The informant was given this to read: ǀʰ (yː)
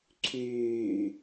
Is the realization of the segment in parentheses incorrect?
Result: no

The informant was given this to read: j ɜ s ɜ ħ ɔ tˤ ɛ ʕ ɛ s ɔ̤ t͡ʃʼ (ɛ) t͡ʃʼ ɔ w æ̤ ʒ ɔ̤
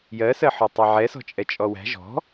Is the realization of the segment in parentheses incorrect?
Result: no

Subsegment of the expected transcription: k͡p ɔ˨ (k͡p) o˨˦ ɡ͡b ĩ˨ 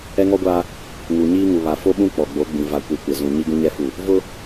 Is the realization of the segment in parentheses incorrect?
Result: yes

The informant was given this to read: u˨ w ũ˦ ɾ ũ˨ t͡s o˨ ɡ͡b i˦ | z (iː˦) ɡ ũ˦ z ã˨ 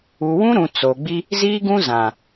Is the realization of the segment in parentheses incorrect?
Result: no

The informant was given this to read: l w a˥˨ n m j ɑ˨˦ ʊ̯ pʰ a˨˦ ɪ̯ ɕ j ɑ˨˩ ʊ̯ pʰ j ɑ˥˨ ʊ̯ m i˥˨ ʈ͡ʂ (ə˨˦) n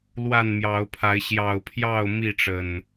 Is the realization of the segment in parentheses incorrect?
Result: yes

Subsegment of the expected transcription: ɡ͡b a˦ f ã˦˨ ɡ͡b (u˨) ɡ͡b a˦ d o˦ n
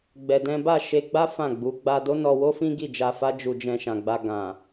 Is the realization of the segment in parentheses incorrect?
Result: yes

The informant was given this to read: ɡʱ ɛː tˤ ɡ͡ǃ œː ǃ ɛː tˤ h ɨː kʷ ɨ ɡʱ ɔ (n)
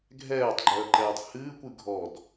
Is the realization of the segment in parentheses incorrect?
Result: yes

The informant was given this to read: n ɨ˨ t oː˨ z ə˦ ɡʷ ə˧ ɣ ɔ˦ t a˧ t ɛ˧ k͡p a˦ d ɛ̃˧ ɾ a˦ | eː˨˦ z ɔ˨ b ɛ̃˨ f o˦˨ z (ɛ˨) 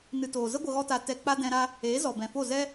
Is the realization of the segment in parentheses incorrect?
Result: yes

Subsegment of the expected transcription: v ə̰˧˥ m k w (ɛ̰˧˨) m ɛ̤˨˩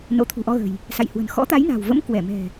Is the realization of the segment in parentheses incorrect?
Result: yes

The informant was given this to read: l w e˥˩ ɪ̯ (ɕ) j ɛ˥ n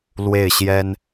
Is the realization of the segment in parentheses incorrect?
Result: no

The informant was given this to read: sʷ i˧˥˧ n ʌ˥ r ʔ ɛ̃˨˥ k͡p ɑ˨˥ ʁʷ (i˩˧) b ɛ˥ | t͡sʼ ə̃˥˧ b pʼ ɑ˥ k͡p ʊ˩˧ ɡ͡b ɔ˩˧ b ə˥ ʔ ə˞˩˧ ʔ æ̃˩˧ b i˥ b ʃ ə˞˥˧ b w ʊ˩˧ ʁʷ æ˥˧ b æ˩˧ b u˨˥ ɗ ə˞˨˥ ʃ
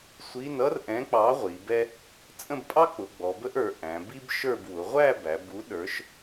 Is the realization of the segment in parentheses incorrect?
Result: no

